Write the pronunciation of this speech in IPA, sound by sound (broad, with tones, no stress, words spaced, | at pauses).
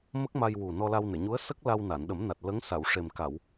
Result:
mə˦˥k̚ma˧j wu˨˩ nɔ˧la˧wne˨˩˨ɲu˧˥ə̯ sə˦˥k̚ la˧wna˨˩˨nɗə˨˩˦mna˨˩t̚ lə˧˥ŋ sa˨˩˨wʂe˨˩m ka˨˩˨w